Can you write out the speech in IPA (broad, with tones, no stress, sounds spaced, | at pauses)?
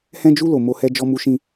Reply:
h ɛ̃˧ d͡ʒ u˧ l o˨ m o˧ h ɛ˧ d͡ʒ ɔ˧ m u˧ ʃ ĩ˧